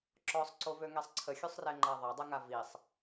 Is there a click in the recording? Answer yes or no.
yes